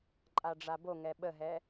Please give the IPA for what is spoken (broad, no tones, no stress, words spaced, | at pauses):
ǃʼaɖ͡ʐaboŋɛ ɓəɦɛ